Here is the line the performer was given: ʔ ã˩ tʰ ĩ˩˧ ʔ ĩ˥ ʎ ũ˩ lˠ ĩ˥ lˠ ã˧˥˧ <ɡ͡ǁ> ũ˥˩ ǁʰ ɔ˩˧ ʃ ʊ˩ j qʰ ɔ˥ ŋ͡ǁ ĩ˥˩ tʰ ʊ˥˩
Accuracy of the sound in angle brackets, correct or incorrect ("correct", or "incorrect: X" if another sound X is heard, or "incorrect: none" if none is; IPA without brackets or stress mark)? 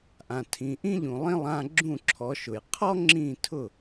correct